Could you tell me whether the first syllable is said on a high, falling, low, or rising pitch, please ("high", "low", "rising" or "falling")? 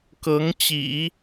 rising